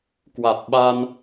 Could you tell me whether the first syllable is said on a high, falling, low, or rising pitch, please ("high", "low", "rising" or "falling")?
low